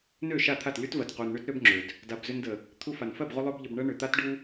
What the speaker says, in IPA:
nø˦˨ʃa˦˨t̪ʰa˦˨t lʲu˦tvɜ˨t qu˨nɳø˦t ɾø˦bŋ͡ǁø˨d | da˨b zø˧ndə˨ | t̪ʰu˧fa˨n fɜ˦˨bʁu˧ lˠø˦bʎə˧bɳɜ˦ ɳø˨ t̪a˦tɖu˦

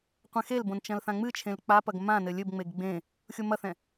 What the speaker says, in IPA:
qʷɛ̃xelbõn t͡ʃɐ̃lθãŋ͡mɨt͡ʃʰẽl k͡papɐɡ mãnɘ lʲɘbŋ͡meɡ ɡ͡bẽ | xʲomɐθɛ̃

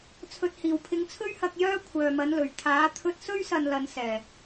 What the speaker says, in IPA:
t͡sʰɵ˨t̚hiː˨˩wpʰɪ˨˧ŋt͡sʰɵ˥ɥ hɐ˧k̚jœː˥ kʷʰœː˨mɐ˨˥nlɵ˨˩ɥ t̪ʰaː˨˥ t̪ʰɵ˧t̚sɵ˥ɥsɐ˨n lɐ˨˧nsɛː˨˩

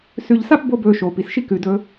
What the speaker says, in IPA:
sʉ˨ʎ sa˥p bo˦ bɵː˨ʃoː˩pi˩sʃi˦ kʉ˩dɵː˨

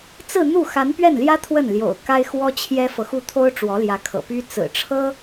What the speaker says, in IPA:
t͡sɹ̩˥˧n̪u˥˩ xa˧˥npɥɛ˥˩nljä˥ t̪ʰwə˥˩nljo̰˨˩ʊ̯ ka˥ɪ̯xwɔ˥t͡ɕʰjɛ˥fɤ˨ xu˥˩t̪ʰo˥ʊ̯ ʈ͡ʂwɔ˧˥ljä˧˥kʰɤ̰˨˩ py˥ t͡sɹ̩˨˩ ʈ͡ʂʰɤ˥

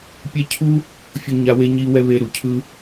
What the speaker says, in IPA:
pʲɛ˦ cʰu˥ | fʲo˥ɲa˦we˥ ɲi˥ wɛ˥βe˦ɾu˩ cʰɯ˥

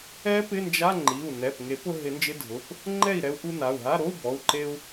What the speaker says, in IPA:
ɛ˦˥ pɪ˧˥˧nd͡ʒa˧˥˧ ŋ͡ǃi˩˧˩u̯nɛ˩˧˩pŋe˨˩˦p ʊ˧ɦɪ˨˩˦nd͡ʒɪ˧˥˧dʱʊ˩˧˩p | ŋ͡ǃɛ˥˩i̯ɾɛ˧u̯ʔu˧ na˩˧˩u̯ɦa˧˥˧ ɾo˧˥˧u̯bɔ˩˧˩u̯ ǃe˧u̯

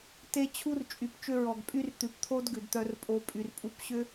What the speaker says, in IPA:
te˦t͡ɕʰu˦r t͡ʃʼy˨pt͡ʃʏ˦ ɹɔ˨ɡpʼy˦rt̪ʉ˨pt̪ʰo˦d ɡʉ˨dt̪œ˦rpʼo˦ pʼy˨rpʼu˦pɕʏ˦

